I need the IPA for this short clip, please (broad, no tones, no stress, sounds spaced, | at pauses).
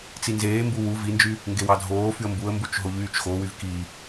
t͡s i n z eː m b u w u v i n d͡ʒ y | ŋ ɡ e w ɑ dʱ oː f y ə̯ m b u ə̯ m b u t͡ʃ ɦ o ʎ yː t͡ʃ x o w y v k i